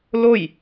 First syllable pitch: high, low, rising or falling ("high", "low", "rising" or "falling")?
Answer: falling